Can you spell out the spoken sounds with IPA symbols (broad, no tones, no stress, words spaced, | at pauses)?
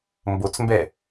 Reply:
mbot͡smbɛ